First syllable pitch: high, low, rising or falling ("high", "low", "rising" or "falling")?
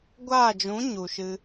falling